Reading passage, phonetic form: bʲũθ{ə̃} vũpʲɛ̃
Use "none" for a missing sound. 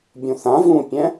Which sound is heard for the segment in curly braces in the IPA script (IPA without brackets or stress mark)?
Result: ã